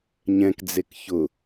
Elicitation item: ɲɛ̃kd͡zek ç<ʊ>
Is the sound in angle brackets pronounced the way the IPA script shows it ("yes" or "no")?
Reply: yes